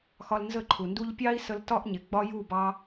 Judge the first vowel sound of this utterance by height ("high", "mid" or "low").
low